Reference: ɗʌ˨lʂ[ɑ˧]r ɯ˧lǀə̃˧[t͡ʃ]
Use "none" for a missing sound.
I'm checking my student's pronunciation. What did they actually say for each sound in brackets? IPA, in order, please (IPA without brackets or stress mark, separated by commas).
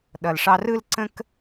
ɑ˧, k